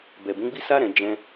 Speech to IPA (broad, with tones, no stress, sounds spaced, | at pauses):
b ɛ˨ b ũ˨˦ ɡ͡b i˦ s a˦ ɾ ɛ̃˧ d͡ʒ ɛ̃˦